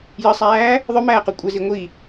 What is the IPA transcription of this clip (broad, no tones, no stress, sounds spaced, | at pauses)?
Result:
j ə sˤ æː | ðˤ ɵ m æː q u kʷʼ ɘ z i ŋʷ i